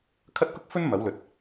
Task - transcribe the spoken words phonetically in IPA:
kʰ ɐ˥ t̚ k ʊ˥ k̚ f ɵ˥ n m ɐ˨˥ w l ɵ˨˥ t̚

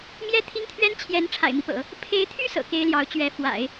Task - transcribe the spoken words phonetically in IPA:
m j ɛ˥ t̪ʰ i˥ ŋ t̪ʰ ɥ ɛ˥ n t͡ɕʰ j ɛ˧˥ n ʈ͡ʂʰ a̰˨˩ ɪ̯ m i˦ p ɤ̰˨˩˦ | pʰ e˧˥ ɪ̯ t̪ʰ y˥ s ɤ̰˨˩ k e˥ ɪ̯ l j ɑ˧˥ ʊ̯ t͡ɕ ɥ ɛ˧˥ f w a̰˨˩˦ ɪ̯

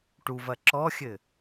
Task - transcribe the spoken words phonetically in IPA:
ʈ u v ɐ ǁ ɔ xʲ ɘ

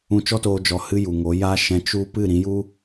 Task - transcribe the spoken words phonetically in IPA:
ũ˧ t͡ʃ ɔ˦ t oː˧ d͡ʒ ɔ˧ h ɨ˦ j u˨ ŋ o˨˦ j aː˦ ʃ ɛ̃˧ t͡ʃ u˦ p ɨ˦˨ ɾ ĩ˨˦ j u˦

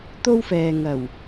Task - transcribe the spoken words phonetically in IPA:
t̪ o˥ w f ɛː˨ ŋ ɐ˨˩ w

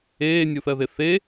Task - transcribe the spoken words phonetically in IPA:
eː nʲ u θ ɜ ð e θ e

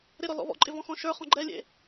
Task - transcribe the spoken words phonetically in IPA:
ɾ ɪ ɾ ɔ l ɔ̰ β ɔ̰ ǃʼ ɪ v ɔ̃ x ɔ̃ ʃ ə˞ χ ɔ̃ ɡ͡ǃ ɛ lʲ ḛ

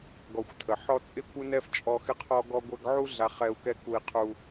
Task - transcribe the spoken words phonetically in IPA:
ɡ ɔ˨ xʷ tʰ ə˩ ħ ɔ˦ t͡sʼ ɪ˥ kʷ ɪ˥ n ɛ˥ f t͡ʃʼ ɔ˦ x ɪ˥ qʰ ɔ˥ ɡ ɔ˦ ɡʷ ɛ˦ ɡ ʕ u˥ ɮ a˦ χ ɛ˦ u̯ k ɛ˥ k u˦ i̯ qʰ u˦

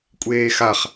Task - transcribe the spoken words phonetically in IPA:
kʷʼ eː x a χ

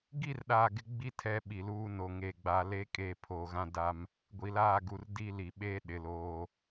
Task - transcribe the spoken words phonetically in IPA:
ɡ i˦˨ r ɗ aː˨ ɡ ɪ˦ ɡ͡b i˦ tʰ ɛ˦ ɓ i˨ l uː˦ n o˨ ŋ eː˨ ɡ͡b aː˨ l eː˦ kʼ eː˦˨ pʰ o˨ ɣ ã˦ d a˦ m | ɡʷ i˨ l aː˦˨ ɡ u˨ r d iː˦ l i˨ ɓ eː˦ ɗ ɪ˨ l oː˦

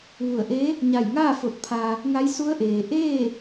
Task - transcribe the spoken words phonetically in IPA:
ʋ u˧˩ ə̯ ʔ eː˧˥ | ɲ a˧˩ j ŋ aː˥˨ f o˧ t̚ pʰ aː˧ | ŋ a˧˥ j s u˧˥ ə̯ ʔ eː˩ ʔ eː˥˨

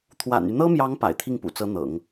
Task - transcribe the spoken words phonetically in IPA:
t̪ʰ w a̰˨˩ n y˦ n̪ ɤ˥ m j ɑ˧˥ ŋ p a̰˨˩ ɪ̯ t̪ʰ i˥˩ ŋ p ṵ˨˩ t͡s ɤ˧˥ n̪ ɤ̰˨˩˦ ŋ

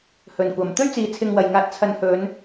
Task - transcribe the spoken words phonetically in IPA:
h ɵ˨ n kʷ ɐ˨ m t̪ ɵ˥ ɥ t͡s iː˨ t͡sʰ ɪ˧ ŋ w ɐ˨ j ŋ aː˧ t̚ t͡sʰ ɐ˧ n h ɵ˨˧ n

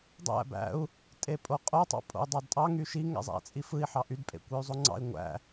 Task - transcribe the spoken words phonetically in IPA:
dˤ æ̰ b æ̰ u̯ | tʼ e pʼ o qʼ o tˤ ɑ̰ pʼ o̰ u̯ dˤ ɑ d tʼ ɑ ŋ y ʃ i ŋ æ̰ zˤ æ̰ t͡sʼ i f ɯ i̯ ħ ɑ ʔ y d pʼ ḛ kʷ e y̯ zˤ o ŋ͡ǀ ɑ̰ i̯ ŋʷ æ̰

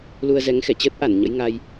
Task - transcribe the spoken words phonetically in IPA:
l u˧ ə̯ z ɛ˨˦ ŋ x ɛ˧˩ t͡ɕ əː˦˥ t̚ ʔ a˧˩ n ɲ ə̰˧˥ j ŋ a˧ j

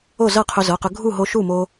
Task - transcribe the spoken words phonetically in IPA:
o˥˩ z ɤ˥˩ qʰ ɵ˧ z ɤ˩˧˩ q ɵ˧ ɡʱ u˥˩ ɦ o˧ ʃ u˥˩ m o˧

